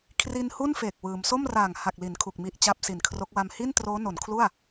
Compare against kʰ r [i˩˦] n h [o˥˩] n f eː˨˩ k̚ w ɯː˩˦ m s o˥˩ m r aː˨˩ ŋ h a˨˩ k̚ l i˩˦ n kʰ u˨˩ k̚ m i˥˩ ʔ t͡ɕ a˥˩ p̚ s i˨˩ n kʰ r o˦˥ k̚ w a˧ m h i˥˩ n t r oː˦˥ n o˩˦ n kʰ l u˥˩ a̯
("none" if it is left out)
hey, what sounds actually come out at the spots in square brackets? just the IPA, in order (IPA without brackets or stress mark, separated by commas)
i˧, u˥˩